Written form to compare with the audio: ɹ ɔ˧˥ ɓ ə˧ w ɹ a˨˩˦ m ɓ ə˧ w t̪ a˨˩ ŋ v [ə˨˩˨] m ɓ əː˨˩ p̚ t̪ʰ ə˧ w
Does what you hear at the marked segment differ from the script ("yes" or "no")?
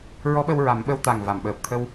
yes